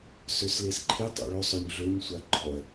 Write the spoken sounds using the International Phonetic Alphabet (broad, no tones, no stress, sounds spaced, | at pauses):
s ø s l e s ǃʰ ɪ tˤ ɑ̰ ɭ ɵ sˤ ɵ ɲ ɮ ø ɲ sʷ a ɡ͡ǃ ɔ ɐ̯